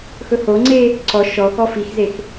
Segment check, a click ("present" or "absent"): present